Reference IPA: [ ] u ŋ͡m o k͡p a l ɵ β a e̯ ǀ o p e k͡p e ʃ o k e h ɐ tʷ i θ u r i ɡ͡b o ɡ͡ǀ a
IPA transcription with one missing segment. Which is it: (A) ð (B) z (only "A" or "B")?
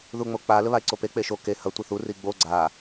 A